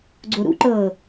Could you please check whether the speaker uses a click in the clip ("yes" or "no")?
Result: yes